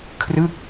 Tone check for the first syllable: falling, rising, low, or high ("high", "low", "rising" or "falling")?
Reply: falling